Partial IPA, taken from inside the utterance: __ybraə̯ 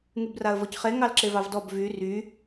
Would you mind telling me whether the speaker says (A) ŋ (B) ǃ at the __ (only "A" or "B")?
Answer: A